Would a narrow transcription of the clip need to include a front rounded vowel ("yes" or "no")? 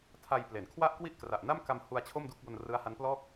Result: no